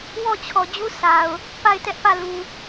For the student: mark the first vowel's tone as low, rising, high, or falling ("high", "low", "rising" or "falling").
falling